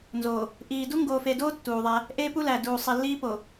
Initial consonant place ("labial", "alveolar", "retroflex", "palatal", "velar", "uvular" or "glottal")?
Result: alveolar